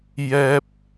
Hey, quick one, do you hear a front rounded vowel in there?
no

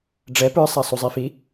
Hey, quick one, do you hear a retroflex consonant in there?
yes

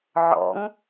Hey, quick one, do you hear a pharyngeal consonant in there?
yes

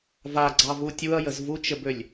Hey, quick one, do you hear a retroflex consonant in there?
no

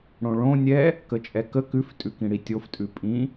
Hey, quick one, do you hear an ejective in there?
yes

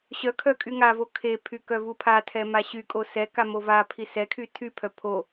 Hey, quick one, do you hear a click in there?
no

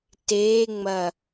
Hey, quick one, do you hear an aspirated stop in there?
no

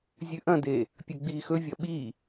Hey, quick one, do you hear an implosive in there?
yes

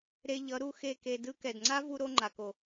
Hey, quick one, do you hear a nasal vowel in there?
no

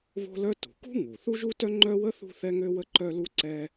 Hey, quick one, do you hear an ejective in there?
no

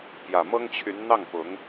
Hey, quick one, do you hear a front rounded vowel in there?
yes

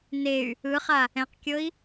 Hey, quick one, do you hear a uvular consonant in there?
yes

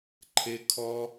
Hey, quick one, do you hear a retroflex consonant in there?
no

